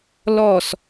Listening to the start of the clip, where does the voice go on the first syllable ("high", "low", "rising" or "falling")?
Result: falling